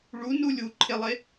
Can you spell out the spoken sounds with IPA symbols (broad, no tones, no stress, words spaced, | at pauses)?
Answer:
ɭunu lʲuǃʰelˠe